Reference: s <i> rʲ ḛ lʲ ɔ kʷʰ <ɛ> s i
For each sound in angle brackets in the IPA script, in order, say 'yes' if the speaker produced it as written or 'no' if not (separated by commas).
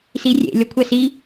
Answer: yes, yes